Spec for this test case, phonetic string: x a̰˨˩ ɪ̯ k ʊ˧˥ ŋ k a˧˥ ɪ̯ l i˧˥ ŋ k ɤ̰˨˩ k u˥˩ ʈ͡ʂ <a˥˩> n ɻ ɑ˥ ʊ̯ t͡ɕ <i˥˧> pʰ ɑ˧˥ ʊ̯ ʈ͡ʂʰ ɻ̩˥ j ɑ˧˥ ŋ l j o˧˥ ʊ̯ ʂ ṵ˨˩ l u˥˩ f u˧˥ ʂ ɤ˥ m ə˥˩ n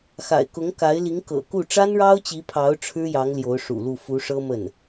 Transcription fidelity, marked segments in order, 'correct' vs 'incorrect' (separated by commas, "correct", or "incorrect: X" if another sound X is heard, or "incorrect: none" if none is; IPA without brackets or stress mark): incorrect: a˥, incorrect: i˧˥